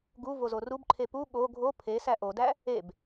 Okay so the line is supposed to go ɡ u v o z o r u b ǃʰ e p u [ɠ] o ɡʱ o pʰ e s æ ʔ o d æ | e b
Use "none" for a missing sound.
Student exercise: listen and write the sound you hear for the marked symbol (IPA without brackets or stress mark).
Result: ɠ